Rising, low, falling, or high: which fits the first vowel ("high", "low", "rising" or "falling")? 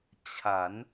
rising